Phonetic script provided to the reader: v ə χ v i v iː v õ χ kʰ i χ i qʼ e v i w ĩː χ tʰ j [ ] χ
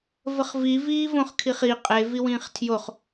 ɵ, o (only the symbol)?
o